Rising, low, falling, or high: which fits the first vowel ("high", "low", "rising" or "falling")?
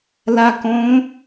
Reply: low